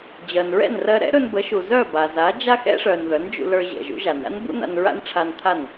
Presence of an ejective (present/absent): absent